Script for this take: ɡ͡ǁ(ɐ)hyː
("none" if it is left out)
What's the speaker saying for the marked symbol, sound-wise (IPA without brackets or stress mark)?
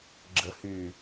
ə